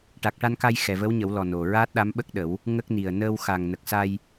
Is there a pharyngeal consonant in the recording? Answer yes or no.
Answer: no